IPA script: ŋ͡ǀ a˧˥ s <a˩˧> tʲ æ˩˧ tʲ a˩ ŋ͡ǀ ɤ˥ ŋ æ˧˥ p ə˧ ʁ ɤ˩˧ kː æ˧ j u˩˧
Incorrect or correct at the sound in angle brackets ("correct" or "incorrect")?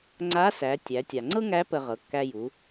incorrect